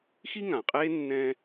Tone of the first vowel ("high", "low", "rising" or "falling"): high